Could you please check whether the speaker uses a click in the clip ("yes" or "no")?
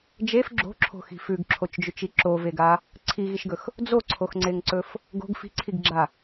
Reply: yes